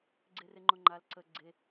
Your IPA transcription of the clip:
ɡ͡ǀ e r e ŋ͡ǃ ʊ ŋ͡ǃ a l ǀ ə ɡ͡ǀ e

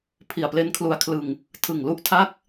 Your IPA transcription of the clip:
pʰ i˨˩ a̯ p l e˦˥ n kʰ l u˧ a̯ kʰ l ɯ˧ ŋ | tʰ ɯ˨˩ ŋ l u˦˥ ʔ tʰ a˥˩ k̚

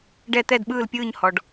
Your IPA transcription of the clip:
ɖ ɛ˥˨ t̪ ɛ˥˨ d ɓ ɯː˥˨ l pʲ ɯː˥˨ ɲ h ɔ˨ ɖ

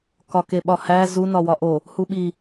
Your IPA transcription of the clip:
k ɒ k e ɓ ɒ h æ z u n ɒ w ɒ ʔ o | h u ɓ i

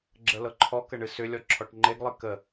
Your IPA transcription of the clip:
ɡ͡ǁ ə l ɤ ǃʰ ɔ k ə ɳ ɨ s ʏ lʲ ɔ ǁʰ ɔ ʈ ŋ͡ǃ e ɡ lˠ ɨ k ə

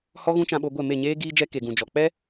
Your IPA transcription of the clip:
h ɔ˦ ɣ ũ˦ t͡ʃ ã˧ ɓ o˧ ɡʷ ɛ˦˨ m e˦˨ ɲ eː˦ ɡ iː˦ d͡ʒ ɛ˦ k e˧ ɡ ũ˧ d͡ʒ ɔ˧ k͡p ɛ˦

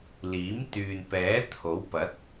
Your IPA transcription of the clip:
l iː˨˥ m t̪ yː˨ n p ɛː˨˥ t̪ʰ o˨˥ w p ɐ˨˥ t̚

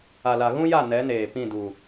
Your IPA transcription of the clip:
a˨ l a˨ ɣ ũ˦ j a˦˨ n ɛ˨˦ n eː˨ p ĩ˦˨ d u˨

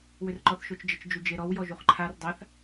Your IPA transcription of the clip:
w ʏ r ǃ ɔ θ ʃ o t͡ʃ d͡ʒ ə t͡ʃ d͡ʒ u d͡ʒ e ɾ ɔ w j ɔ ʒ u χ ǃʰ a r dˤ a θ

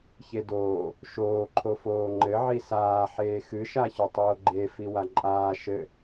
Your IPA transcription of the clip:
ç e d oː | ʃ oː ǃʰ o f oː ŋ͡ǃ ɘ ʕ i s aː ħ eː x ɨ ʃ a ç o tˤ oː ɡ͡ǃ e f i w a ǃʼ aː ʃ ɘ

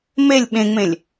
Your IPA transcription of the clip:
m e lʲ ɓ ẽ ŋ͡m ẽ lʲ

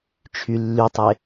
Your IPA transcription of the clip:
t͡ʃʰ y lː y tˤ e

